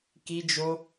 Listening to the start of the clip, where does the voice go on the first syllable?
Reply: high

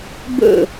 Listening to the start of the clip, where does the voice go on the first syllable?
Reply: falling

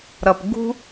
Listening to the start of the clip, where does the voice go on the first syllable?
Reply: low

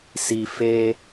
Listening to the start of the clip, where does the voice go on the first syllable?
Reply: low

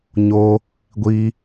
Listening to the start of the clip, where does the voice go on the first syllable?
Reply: high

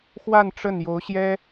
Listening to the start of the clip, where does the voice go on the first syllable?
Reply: falling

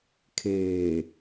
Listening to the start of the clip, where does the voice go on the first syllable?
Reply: low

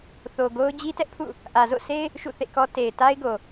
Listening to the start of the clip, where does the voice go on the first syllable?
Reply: low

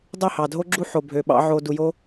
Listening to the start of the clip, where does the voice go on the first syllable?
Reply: falling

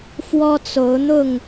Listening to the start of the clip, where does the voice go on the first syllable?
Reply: high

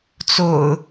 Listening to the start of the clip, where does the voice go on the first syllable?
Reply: low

